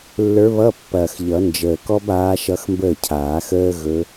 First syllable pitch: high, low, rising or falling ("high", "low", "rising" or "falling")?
rising